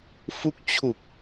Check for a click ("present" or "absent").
absent